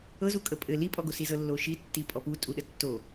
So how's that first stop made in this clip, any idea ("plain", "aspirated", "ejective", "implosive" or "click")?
ejective